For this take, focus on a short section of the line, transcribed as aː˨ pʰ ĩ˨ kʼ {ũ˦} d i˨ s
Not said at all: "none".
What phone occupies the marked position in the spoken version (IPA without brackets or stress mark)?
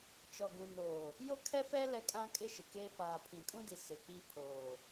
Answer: ũ˦